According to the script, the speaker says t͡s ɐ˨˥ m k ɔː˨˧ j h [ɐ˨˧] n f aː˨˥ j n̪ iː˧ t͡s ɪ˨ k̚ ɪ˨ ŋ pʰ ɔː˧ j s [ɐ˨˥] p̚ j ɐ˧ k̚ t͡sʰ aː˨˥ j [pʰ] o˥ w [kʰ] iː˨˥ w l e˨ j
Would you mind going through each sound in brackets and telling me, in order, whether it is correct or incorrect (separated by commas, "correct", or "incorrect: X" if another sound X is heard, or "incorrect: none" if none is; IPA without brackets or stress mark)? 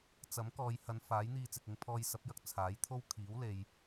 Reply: correct, correct, incorrect: t̪ʰ, correct